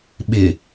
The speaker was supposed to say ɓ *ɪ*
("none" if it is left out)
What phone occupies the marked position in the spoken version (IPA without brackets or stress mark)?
ɪ